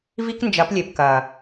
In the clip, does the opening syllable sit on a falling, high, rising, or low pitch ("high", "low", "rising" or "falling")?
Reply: high